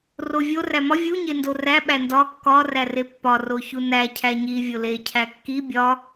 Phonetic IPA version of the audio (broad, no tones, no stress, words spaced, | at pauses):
rovʲo ræmɒ vʲu ɲendoræ ɓændɒ kːɒ rærepːɒ roçunæ cʰæɲi vʲole cʰækːi bʲɒ